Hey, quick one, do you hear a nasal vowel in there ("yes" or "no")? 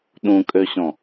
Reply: yes